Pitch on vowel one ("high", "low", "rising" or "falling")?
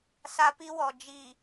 high